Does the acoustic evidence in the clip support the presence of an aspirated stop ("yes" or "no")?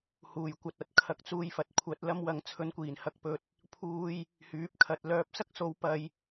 yes